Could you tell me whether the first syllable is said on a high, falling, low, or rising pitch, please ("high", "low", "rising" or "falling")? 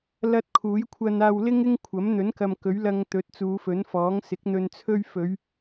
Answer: high